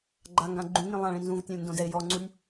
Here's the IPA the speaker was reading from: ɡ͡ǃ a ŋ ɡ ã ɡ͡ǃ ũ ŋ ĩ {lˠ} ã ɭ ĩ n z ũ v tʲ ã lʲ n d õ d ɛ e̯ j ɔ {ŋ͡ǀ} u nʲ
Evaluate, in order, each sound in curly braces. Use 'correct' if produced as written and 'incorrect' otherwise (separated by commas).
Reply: correct, correct